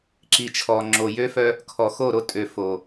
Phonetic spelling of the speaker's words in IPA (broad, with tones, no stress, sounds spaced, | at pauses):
ǁ i˨ t͡ʃʰ ɔ˨ ŋ͡ǁ o˨ j ø˦ f œ˦ | kʰ ɔ˨ x o˦˨ ɾ o˦ tʼ ø˨ f o˨